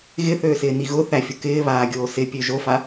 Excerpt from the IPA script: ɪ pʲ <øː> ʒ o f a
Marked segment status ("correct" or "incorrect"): incorrect